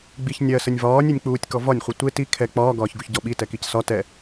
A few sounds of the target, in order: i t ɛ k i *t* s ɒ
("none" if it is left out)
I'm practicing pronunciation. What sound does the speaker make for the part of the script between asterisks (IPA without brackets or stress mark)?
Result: c